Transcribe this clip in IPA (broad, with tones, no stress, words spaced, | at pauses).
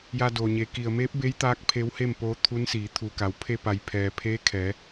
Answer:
ja˧doː˩ɲe˩˧ ki˩ə̯meː˧˥p̚be˧˥j t̪aː˧˥k̚ pʰe˧˥whe˥˨mpoː˧˥ t̪ʰu˧˥nsiː˩˧ t̪ʰuː˩ka˩˧w pʰe˧pa˩jpʰɛː˩ pʰeː˧˥ kʰɛː˩˧